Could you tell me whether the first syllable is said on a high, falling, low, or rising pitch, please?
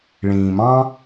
low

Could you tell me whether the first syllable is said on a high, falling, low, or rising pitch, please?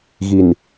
low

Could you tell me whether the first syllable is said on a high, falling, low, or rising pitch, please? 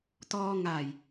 low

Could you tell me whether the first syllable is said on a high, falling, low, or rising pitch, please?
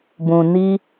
low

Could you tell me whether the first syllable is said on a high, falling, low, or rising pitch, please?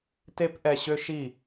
high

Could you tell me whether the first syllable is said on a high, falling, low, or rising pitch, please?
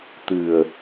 low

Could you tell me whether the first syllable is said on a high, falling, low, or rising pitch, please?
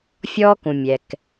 high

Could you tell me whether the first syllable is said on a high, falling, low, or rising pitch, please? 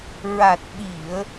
low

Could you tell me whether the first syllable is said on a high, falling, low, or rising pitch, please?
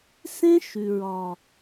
high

